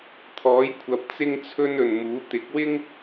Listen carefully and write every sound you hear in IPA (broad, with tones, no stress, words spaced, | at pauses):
t̪ʰɔː˨˥jkʷʰɐ˨˥p̚ t͡sɪ˥ŋt͡sʰɵ˥n ɵ˨nmuː˨˥ t̪ɪ˨˥k̚wɪ˥ŋ